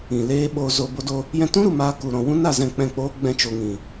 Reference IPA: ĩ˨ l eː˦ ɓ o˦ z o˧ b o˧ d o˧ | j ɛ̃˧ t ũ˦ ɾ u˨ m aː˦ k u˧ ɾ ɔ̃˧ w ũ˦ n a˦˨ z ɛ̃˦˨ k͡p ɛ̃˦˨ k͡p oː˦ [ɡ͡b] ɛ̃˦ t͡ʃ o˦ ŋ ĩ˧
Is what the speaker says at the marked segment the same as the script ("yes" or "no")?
yes